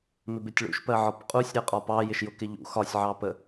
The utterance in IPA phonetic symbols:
m ɪ b ɪ tʲ ɭ ṵ ʃ p ɜ ʕ ɒ p qʼ u sʲ ɾ ɜ qʼ ɒ p ɑ j ɪ ʃ j ʊ k ɪ ʎ ṵ x ɒ sʲ ʕ ɑ p ə

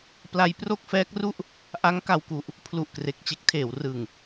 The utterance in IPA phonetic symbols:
p l a˧ j p r o˥˩ k̚ f ɛː˦˥ k̚ r u˥˩ ʔ | ʔ a˦˥ ŋ k a˧ w k u˨˩ ʔ | pʰ l u˨˩ ʔ k r e˨˩ k̚ t͡ɕ e˦˥ k̚ tʰ eː˩˦ w r ɯ˨˩ ŋ

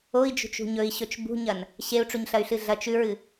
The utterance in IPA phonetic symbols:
o i̯ d͡ʒ ṳ t͡ʃ ṳ ɲ ɵ i̯ ɕ ɵ t͡ʃ b ṳ ɲ ɐ n | ɕ e u̯ ʈ͡ʂ u ɲ ɬ ɐ y̯ ɬ ɨ ɮ ɐ t͡ʃ ʉ ɹ ɨ

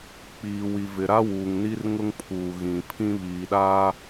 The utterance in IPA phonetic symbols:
k͡p iː˨ w i˨ v ɪ˨ ɾ a˦ w uː˨ ŋ n i˦ r ŋ ʊ˦ ŋ pʰ uː˨ ɣ ĩ˨ pʰ ĩ˦ β iː˨ ɗ a˦

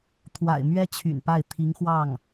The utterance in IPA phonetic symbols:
t̪ʰ w a̰˨˩ ɪ̯ m ɥ ɛ˥ t͡ɕʰ y̰˨˩ n p a˥˩ ɪ̯ t̪ʰ i˧˥ ŋ x w ɑ˥˩ ŋ

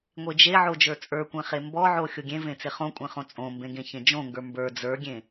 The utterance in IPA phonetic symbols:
ŋʷ e d͡ʒ e ʕ o d͡ʒ ə˞ t͡sʼ ə˞ kʷ ẽ χ e m b ɔ ʕ o xʲ o ɡʲ ẽ v ẽ t͡s e χ õ kʷʼ ẽ χ õ t͡sʼ õ m b ẽ ɡ ẽ ç ẽ d͡ʒ õ ŋ ɡ ə˞ m b ə˞ d͡z ə˞ ɡʲ ẽ

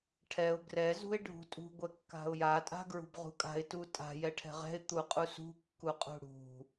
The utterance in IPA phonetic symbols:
ʈʰ ɛ ʊ̯ ɡ r ɛ z ṳ ɪ̯ ɖʱ ṳ tʼ ṳ ɡʷ ɛ kː a̤ ʊ̯ j a tʼ a̤ ɡ ɹ ṳ b ʁ ṳ kʼ a̤ ɪ̯ t u tʼ a̤ j ɛ ʈʰ ɛ̤ ʁ ɛ̤ ɪ̯ t̪ u qʼ u s ṳ kː u qʼ ṳ ɽ ṳ

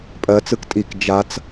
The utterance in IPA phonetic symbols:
pʼ ɜ t͡s ɯ k tʼ i k d͡ʒ a t͡s

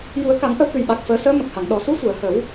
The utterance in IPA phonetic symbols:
j u˨˩˦ ə̯ k a˨˩˦ ŋ ʔ ə˧ w k ɨ˨˩ j ɓ a˨˩ k̚ f əː˨˩˦ s əː˧˥ m ə˨˩ k̚ h a˨˩˨ ŋ ɗ ɔ˨˩˨ s u˧˥ f u˨˩˨ ə̯ h ə˨˩˦ w

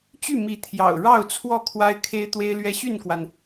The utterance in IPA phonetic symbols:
t͡ɕ y˥˨ m i˨˦ t̪ʰ j ɑ̰˨˩ ʊ̯ ɻ ɑ˥˨ ʊ̯ t͡sʰ w ɔ˥˨ kʰ w a˦ ɪ̯ kʰ e˦ ɪ̯ t̪ w e˦ ɪ̯ l ɥ ɛ˦ ɕ y˥˨ n k w a˩ n

